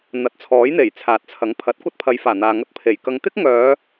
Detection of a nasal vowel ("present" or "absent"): absent